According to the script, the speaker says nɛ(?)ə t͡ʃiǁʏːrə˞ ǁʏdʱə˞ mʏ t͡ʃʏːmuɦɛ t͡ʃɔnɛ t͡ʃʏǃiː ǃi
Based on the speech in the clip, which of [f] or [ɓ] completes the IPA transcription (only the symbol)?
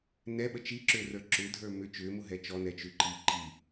ɓ